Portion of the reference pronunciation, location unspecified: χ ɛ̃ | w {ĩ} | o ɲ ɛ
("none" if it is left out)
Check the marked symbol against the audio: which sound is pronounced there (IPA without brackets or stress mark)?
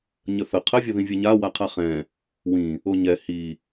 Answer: ĩ